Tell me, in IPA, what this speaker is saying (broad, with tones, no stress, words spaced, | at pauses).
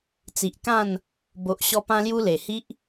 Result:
t͡si˨ʔkã˥˧n | bo˨ʔɕɔ˧pã˧lju˧ le˨˩hi˦ʔ